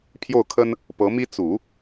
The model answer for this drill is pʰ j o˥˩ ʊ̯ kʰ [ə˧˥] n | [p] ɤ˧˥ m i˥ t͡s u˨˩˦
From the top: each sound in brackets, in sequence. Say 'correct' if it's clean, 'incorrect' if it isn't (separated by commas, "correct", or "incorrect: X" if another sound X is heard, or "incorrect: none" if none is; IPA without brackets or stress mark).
incorrect: ə˥, correct